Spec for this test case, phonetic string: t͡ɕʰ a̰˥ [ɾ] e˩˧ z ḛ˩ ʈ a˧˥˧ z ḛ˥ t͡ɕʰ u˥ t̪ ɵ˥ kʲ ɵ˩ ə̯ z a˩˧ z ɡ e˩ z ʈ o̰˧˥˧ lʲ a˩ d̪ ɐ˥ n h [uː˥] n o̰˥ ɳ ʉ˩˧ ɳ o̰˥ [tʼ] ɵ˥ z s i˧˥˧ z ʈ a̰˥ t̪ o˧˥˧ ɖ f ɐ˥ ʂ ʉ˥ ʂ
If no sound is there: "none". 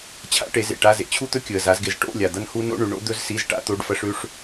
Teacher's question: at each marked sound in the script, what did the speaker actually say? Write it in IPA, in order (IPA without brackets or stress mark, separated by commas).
ʈ, u˥, d̪